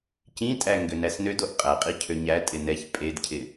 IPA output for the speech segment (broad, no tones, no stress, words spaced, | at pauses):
cĩtʼæ ŋɡønæsnød oʔqʼæ qʼicʰøɲæ tʼɪnɛç pʼedcʰɪ